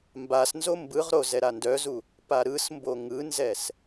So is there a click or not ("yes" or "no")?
no